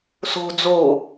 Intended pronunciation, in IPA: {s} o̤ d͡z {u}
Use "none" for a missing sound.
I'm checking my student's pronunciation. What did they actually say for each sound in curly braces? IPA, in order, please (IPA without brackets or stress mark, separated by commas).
s, o